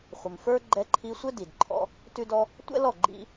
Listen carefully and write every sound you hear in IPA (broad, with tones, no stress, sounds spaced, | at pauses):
χʷ ɘ˨ m f ə˞˦ ɡ͡ǃ ɛ˧ ǃʰ i˧ sʷ ɘ˦ d i˨ d ǃʰ ɔ̰˦ | t ʉ˦ d ɔ˦ | tʷ ɛ̰˦ l ɔ˦˨ ɡ͡ǃ ḭ˦